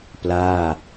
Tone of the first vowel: falling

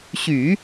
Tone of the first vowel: low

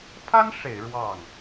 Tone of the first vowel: high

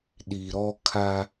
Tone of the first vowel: low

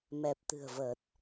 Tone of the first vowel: low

